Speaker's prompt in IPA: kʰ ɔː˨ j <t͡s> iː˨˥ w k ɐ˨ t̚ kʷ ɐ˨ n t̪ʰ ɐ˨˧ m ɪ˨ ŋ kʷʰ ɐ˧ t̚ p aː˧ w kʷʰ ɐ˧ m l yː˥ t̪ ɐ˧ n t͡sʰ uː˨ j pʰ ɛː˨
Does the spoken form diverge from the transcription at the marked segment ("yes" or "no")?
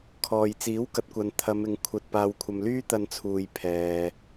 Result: no